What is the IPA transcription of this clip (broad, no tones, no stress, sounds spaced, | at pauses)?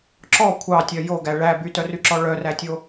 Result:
ǁ ɔ kʷʰ ɑ tʲ œ j o ɡ æ ɭ æ b y t œ r y ǁ ɔ ɭ œ r æ tʲ o